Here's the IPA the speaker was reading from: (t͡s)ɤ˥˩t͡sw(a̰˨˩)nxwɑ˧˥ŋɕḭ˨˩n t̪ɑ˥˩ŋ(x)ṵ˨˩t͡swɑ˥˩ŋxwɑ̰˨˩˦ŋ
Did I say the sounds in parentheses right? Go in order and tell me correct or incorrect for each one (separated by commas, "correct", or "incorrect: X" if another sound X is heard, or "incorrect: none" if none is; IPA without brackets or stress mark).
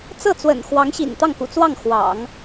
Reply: correct, incorrect: ə̰˨˩, incorrect: k